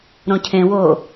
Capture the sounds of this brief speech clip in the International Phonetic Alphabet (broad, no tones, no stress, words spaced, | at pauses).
ɾõcʰẽwoː